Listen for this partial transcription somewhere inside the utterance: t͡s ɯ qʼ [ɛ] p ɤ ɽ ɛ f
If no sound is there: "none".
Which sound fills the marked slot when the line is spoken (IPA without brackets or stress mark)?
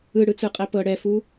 ɛ